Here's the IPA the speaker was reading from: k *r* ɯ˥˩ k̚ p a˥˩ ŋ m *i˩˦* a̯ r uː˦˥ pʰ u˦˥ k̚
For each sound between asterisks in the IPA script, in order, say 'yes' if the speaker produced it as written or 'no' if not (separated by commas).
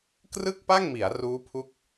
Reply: yes, yes